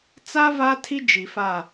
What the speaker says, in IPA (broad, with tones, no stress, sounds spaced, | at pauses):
t͡s a˦ v aː˦ tʰ i˦ d͡ʒ i˨ f a˦˨